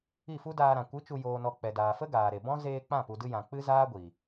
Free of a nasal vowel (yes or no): no